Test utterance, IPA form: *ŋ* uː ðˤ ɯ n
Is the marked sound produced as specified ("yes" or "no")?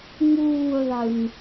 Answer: yes